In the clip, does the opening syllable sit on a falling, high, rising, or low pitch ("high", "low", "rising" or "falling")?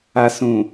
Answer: low